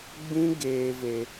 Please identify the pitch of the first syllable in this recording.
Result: high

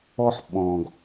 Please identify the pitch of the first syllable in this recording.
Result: high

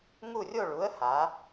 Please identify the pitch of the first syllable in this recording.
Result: falling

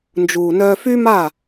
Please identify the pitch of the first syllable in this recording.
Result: low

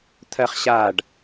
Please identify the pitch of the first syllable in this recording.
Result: high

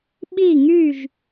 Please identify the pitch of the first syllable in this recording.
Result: falling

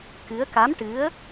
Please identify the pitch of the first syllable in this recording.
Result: rising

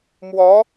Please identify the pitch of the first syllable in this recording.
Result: rising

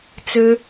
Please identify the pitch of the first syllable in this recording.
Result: low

